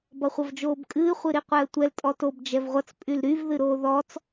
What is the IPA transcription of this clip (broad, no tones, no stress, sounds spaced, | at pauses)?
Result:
b ʌ χʷ ʌ v d͡ʒ oː b kʼ ɨː χʷ ɨ ɾ i qʷ ɛ ə̯ tʷ ɛ l tʼ ɔ t o b d͡ʒ ɛ v ʁʷ ʌ t͡s pʼ y l ɾ y v ð ɨ ɾ oː ð ɔ t͡s